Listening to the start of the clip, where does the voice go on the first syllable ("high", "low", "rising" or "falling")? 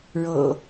low